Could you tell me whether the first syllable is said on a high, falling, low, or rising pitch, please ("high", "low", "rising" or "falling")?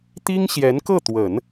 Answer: high